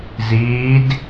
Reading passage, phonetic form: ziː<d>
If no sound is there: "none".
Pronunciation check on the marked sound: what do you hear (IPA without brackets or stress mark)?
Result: d